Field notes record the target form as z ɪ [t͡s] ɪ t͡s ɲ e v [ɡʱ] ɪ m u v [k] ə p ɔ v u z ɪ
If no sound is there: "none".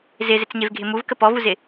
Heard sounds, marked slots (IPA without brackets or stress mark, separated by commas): z, ɡʱ, k